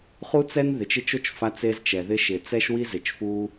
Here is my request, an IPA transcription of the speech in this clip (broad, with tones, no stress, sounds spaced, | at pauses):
χ u˥ t͡s ɛ˥ n ð ɪ˩ t͡ʃ ɪ˦ t͡ʃ o˥ t͡ʃ f a˦ t͡s e˦ z t͡ʃ ɛ˩ ð ɪ˦ ʃ ɪ˩ t͡s ɛ˥ ʃ w i˥ z ɪ˨ t͡ʃ f u˥